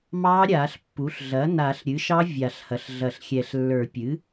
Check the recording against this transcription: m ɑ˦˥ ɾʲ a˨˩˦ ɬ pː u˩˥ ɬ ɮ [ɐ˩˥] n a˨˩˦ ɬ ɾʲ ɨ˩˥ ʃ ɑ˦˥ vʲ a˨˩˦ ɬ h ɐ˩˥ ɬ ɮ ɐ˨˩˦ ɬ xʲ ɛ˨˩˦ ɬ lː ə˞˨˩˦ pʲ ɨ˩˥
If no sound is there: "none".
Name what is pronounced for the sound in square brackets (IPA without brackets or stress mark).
ɐ˩˥